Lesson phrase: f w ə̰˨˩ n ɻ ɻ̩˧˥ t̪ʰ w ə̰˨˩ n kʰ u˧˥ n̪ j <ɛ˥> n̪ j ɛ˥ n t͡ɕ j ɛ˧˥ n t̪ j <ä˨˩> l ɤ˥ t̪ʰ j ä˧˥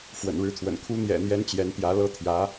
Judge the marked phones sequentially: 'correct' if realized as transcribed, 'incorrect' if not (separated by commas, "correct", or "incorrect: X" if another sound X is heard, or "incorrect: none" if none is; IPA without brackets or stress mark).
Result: incorrect: ɛ̰˨˩, incorrect: ä˧˥